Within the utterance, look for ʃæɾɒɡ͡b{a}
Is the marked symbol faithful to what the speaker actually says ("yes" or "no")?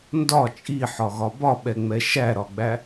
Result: no